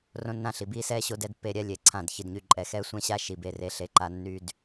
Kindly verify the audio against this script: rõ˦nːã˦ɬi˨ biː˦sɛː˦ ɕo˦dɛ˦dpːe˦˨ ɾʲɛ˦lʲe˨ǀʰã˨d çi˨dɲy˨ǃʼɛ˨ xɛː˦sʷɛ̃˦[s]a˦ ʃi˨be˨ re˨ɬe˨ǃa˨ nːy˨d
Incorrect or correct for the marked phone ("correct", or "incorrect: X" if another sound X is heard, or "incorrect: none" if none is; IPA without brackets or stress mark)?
incorrect: ɕ